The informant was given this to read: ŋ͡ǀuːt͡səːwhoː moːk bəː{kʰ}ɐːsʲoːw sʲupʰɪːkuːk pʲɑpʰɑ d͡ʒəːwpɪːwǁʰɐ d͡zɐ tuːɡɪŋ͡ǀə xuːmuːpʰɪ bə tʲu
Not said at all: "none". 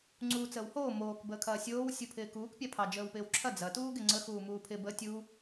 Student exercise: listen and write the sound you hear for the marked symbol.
kʰ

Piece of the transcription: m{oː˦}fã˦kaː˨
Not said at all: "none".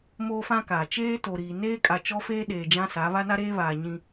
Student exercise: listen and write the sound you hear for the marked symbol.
oː˦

